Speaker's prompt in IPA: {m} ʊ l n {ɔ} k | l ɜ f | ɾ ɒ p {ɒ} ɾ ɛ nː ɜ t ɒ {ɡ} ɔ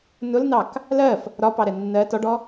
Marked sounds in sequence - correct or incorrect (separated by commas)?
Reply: incorrect, incorrect, incorrect, incorrect